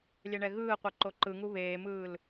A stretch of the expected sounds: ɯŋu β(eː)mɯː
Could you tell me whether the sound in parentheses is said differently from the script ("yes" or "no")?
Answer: no